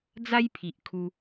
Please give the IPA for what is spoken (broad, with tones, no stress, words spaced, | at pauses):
d͡za˦jpʰi˨ʔ kʰu˧